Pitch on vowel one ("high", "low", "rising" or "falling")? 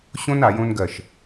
high